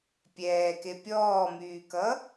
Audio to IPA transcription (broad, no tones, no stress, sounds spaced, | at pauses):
pʲ ɛː k e pʲ ɔː m yː k ʌ